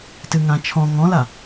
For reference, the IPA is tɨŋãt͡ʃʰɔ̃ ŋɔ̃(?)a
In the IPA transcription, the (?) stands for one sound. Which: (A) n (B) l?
B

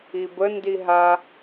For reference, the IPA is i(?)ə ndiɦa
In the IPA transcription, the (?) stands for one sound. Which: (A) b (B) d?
A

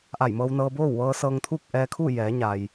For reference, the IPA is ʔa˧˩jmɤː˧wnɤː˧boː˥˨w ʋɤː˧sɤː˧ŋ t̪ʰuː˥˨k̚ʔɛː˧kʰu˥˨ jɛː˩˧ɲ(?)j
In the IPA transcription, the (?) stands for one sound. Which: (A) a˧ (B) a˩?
B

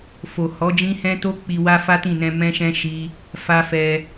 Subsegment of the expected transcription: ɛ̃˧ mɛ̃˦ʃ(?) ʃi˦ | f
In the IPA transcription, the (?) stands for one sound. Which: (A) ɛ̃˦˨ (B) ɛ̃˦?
B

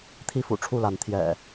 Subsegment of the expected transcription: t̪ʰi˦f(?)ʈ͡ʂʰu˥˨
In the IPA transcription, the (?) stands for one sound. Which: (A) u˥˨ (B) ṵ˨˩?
B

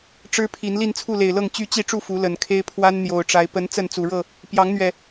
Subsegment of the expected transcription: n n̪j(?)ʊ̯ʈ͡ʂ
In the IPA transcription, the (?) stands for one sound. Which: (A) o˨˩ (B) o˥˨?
A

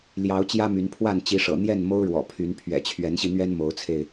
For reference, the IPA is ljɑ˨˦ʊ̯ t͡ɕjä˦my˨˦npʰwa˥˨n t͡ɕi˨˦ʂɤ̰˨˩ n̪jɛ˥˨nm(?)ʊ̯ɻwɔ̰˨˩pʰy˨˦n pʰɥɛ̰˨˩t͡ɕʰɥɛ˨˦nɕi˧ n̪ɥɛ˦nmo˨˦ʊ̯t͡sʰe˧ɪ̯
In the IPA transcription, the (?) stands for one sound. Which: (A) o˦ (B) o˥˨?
A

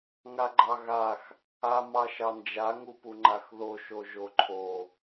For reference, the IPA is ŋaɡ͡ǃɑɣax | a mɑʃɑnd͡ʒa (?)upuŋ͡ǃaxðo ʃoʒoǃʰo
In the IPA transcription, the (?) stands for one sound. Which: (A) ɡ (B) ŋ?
B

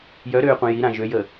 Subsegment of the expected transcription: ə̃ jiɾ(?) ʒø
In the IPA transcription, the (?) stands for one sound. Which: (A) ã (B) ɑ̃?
A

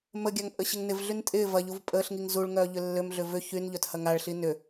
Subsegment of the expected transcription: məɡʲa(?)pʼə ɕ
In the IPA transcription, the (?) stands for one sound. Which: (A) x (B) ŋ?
B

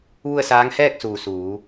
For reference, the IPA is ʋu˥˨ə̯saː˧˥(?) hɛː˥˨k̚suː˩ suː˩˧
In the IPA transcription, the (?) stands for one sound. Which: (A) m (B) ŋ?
B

